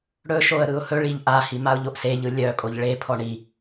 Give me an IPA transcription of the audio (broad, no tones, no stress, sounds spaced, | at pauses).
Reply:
ɽ ɵ ʃ o ə̯ ɾ ɯ ʊ̯ h ɵ ɭ i ʎ ʔ a h i m a ʊ̯ ʎ o ʔ s e ʎ ɯ lʲ œ kʼ o ʎ ɭ e pʰ ɔ ɳ i